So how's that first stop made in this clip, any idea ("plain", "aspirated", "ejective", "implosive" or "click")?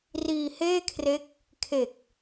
aspirated